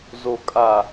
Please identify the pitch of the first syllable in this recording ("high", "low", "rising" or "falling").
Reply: low